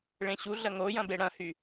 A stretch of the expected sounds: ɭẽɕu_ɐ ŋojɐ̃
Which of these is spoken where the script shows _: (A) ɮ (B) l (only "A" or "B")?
A